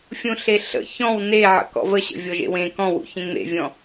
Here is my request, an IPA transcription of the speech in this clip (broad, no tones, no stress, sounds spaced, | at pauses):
fʲ ũ ɬ e ɬ ə̰ ç ɔ̃ w n e ʕ ə̰ k ɔ̰ v ə ɕ ə̰ vʲ ɔ ʒ ḛ w ẽ k ɔ̃ w ṵ ç ẽ ŋ͡m ḛ vʲ ɔ̃